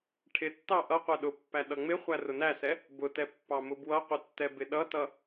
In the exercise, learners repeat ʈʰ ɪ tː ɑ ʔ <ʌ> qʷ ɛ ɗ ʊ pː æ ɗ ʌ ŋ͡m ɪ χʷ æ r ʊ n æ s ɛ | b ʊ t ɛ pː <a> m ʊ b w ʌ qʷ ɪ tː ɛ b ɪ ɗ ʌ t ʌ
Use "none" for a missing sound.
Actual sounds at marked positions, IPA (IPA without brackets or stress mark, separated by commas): ʌ, ɑ